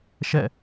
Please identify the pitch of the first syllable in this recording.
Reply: falling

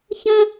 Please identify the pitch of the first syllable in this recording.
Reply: high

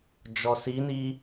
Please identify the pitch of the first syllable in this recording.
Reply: low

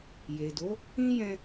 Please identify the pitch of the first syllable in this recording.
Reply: low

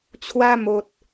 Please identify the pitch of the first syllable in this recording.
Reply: high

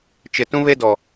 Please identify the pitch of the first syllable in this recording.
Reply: low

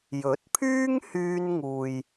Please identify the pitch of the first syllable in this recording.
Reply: rising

